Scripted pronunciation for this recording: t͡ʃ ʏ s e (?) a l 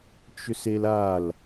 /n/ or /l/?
l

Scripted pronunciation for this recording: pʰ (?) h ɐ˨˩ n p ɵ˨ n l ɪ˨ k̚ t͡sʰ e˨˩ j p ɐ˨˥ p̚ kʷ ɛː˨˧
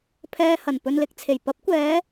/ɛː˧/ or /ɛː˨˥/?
ɛː˧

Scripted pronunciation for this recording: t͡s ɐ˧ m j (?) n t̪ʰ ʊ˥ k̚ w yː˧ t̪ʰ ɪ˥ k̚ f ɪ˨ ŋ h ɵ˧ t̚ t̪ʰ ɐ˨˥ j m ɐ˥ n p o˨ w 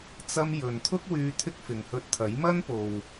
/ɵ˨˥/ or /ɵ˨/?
ɵ˨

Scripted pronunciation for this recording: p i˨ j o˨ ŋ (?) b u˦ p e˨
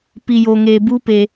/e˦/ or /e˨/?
e˨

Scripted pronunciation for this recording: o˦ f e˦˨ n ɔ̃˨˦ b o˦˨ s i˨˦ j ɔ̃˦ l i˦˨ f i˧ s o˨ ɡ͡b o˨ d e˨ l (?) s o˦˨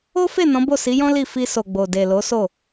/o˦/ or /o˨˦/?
o˨˦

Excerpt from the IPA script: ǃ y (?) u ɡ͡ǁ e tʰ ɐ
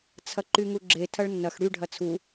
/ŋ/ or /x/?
ŋ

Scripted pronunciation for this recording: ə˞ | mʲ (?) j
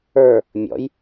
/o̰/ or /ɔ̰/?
ɔ̰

